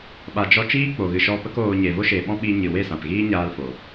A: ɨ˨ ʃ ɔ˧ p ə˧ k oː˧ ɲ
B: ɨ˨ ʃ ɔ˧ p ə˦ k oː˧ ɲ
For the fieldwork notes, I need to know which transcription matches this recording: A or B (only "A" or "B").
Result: B